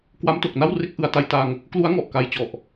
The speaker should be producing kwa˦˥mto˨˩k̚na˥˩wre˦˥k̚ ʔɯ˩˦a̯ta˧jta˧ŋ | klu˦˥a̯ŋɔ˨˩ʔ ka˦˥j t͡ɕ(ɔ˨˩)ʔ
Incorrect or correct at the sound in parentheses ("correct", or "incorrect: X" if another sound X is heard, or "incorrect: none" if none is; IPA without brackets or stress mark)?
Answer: correct